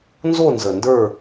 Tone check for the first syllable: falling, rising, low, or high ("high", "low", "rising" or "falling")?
falling